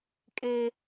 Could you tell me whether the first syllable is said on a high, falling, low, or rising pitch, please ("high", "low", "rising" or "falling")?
high